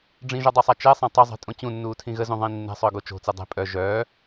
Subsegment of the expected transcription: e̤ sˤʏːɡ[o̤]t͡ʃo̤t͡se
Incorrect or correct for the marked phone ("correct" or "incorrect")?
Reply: incorrect